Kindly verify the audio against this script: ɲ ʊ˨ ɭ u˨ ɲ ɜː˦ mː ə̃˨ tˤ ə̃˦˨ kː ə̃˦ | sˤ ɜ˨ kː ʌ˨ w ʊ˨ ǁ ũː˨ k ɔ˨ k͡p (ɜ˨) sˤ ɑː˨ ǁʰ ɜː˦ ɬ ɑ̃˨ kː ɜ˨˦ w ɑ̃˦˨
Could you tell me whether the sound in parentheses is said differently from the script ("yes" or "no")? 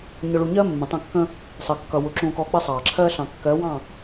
yes